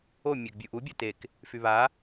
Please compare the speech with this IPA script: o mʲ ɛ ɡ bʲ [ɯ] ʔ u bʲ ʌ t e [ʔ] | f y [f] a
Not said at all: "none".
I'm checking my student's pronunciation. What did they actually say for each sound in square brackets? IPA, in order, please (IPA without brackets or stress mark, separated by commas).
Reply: u, k, β